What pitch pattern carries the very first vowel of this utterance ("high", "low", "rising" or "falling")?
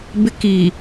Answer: high